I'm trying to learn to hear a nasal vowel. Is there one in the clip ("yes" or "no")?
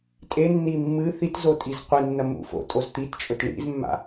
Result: no